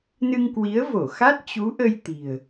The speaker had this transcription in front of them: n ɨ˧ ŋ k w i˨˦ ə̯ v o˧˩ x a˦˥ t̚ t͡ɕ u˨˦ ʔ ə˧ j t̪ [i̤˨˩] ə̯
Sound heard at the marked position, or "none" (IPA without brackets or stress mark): i̤˨˩